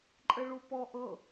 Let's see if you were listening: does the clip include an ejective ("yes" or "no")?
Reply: yes